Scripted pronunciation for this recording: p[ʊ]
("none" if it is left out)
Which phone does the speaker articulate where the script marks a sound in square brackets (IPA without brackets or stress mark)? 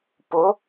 ʊ